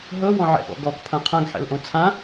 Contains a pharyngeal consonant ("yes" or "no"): yes